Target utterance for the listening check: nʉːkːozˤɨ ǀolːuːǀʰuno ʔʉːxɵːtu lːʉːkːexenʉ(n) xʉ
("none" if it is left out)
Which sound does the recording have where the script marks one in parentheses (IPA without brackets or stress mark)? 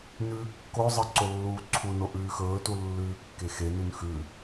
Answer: n